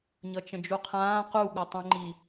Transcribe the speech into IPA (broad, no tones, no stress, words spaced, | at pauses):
ɲʌt͡ʃə̃d͡ʒuqʰãː qu ɠutˤũŋ͡ǃi